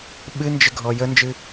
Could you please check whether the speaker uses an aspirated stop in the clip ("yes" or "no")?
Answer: no